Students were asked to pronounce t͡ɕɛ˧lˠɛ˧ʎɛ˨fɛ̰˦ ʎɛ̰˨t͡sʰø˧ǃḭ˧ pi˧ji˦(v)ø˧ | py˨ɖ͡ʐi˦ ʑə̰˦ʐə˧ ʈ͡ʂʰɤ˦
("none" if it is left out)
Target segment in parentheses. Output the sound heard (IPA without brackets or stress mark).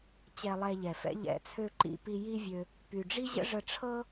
vʲ